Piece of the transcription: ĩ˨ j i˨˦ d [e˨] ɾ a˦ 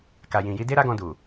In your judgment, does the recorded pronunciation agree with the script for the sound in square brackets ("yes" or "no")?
no